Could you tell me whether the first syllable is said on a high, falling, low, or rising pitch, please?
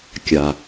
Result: low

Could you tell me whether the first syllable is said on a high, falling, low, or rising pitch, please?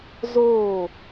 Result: falling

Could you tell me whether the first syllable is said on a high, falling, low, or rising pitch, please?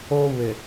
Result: high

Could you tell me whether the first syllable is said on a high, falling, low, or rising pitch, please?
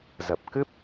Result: low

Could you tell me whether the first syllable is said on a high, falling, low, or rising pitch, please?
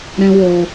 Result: high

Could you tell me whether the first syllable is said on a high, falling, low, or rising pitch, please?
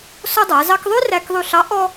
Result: high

